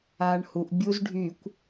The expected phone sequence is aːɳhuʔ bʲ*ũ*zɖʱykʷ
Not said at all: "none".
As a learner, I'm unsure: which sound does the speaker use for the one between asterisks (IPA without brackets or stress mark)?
u